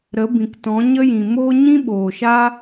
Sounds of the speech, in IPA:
ɾə˨˦ bĩ˨ktɔ̃˨˦ ɲə˦ jĩ˨moː˦ ɲĩ˦ɓoː˨ʃa˦

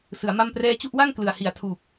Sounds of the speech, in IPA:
sɯ˩˦a̯ma˥˩mprɛː˥˩ t͡ɕu˥˩ʔwa˥˩ŋ klɯ˨˩a̯hi˨˩a̯tʰuː˨˩p̚

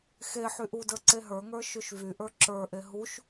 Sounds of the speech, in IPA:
xe ħyʔudə˞ ǀeɦə˞ŋə˞ ʃyʃvyʔə˞ ǁə˞ʔe ɦuʃ

